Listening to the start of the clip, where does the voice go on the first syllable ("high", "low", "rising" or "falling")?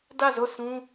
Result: falling